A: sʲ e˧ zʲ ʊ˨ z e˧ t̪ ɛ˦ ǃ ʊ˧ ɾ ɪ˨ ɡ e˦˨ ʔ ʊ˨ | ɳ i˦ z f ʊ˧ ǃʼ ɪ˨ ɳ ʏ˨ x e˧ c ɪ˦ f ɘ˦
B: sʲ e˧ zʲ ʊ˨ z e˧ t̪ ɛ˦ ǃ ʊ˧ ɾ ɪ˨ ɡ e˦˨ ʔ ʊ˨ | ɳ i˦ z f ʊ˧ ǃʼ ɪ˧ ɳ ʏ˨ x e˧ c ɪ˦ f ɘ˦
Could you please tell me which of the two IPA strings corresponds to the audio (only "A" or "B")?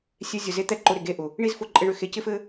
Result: B